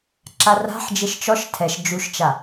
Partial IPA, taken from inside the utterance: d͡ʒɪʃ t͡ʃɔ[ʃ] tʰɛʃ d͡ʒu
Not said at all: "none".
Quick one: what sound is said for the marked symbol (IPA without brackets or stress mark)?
ʃ